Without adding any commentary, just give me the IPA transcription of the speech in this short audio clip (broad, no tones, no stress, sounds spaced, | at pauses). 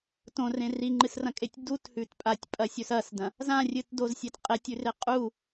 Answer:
t õ r ẽ r i ŋ͡ǃ ɨ s r ɐ̃ kʼ e tʲ d u t h ʉ t pʼ a tʲ pʼ ɐ sʲ ɵ s ɐ s d ɐ̃ | z ã rʲ ɨ t d o z sʲ e t qʼ e tʲ ʉ r e qʼ u